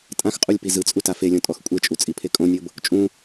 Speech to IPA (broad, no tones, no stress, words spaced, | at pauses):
tʼãxqʼulʲ pizɯt͡sʼu tafelʲɔ̃ tʼɔxkʷʼet͡ʃʼu t͡sʼipʰekʼõnʲɤb | t͡ʃʼũ